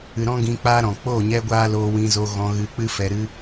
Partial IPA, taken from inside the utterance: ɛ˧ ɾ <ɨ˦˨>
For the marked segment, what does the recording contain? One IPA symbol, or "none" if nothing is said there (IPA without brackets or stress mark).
ɨ˦